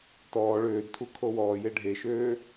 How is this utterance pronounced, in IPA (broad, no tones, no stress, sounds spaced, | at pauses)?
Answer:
t ɔː ɭ øː d tʰ u kʰ o w ɔː j e ɖʱ e ʃ øː